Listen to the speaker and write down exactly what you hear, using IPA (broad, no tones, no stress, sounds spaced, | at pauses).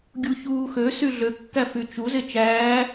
ɡʲ u ç uː x ø s y ɮ ø kː æ f y t͡ʃ u z e t͡ʃ æː